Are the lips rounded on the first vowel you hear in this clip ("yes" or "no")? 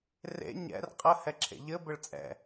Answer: no